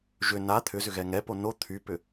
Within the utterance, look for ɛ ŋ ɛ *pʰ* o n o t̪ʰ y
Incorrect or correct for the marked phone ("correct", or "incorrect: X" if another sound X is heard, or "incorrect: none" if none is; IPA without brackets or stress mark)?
incorrect: p